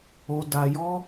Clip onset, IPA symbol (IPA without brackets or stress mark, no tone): o